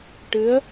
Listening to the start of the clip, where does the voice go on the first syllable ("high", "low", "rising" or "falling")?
rising